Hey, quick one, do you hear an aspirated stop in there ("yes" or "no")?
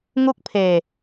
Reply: yes